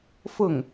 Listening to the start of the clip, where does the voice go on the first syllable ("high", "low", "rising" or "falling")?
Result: falling